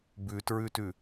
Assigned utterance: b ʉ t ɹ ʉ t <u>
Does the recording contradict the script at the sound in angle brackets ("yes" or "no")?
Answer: yes